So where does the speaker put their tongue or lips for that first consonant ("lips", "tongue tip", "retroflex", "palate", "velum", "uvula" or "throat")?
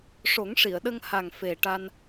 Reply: retroflex